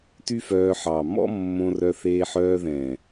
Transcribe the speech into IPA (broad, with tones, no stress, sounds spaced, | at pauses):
t y˦ f œː˧ ħ ɑ˨ m ɔ̰˦ mː õ˧ r œ˧ θ eː˧ ħ œː˧ ð ɛ̃˨